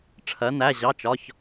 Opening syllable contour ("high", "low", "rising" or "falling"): rising